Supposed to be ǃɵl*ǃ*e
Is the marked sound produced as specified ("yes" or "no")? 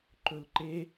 yes